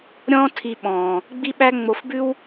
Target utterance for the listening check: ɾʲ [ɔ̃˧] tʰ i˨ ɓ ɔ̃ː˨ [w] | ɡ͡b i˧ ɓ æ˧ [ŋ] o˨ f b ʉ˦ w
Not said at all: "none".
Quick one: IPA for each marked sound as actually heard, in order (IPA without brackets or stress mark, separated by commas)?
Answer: ɔ̃ː˧, none, ŋ͡m